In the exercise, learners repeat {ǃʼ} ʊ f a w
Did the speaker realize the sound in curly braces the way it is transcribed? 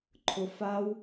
no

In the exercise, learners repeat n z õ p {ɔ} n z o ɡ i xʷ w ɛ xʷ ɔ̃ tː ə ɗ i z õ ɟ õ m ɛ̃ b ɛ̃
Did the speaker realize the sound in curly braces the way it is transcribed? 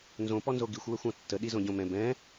yes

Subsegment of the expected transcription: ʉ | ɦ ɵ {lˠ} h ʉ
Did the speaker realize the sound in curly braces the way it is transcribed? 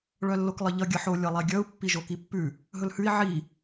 no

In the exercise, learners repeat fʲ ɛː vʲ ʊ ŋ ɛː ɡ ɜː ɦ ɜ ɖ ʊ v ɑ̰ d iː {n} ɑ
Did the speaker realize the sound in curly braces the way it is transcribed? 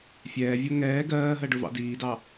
no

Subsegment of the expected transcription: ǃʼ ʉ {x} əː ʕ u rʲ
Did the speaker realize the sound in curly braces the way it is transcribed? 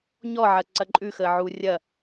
yes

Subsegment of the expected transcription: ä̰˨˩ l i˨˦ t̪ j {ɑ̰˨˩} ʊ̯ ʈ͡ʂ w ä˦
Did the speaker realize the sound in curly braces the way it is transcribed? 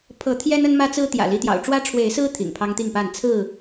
yes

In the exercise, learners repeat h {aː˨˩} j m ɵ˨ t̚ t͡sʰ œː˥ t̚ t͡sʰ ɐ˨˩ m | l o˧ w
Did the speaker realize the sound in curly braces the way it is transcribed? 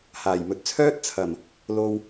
yes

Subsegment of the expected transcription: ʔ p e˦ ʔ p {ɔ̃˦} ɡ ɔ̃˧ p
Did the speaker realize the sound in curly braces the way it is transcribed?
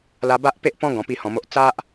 yes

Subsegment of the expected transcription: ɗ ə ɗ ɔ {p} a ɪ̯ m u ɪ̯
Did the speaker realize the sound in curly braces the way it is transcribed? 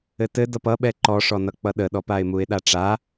yes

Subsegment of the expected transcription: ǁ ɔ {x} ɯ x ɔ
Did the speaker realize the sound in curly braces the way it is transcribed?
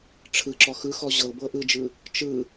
yes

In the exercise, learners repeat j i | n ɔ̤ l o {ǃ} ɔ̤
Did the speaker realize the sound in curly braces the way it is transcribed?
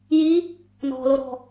no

